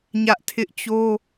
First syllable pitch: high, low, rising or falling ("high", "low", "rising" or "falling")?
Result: high